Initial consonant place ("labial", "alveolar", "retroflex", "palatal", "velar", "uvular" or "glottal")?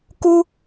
velar